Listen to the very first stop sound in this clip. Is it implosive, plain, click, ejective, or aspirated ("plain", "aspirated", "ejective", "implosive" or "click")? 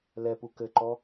plain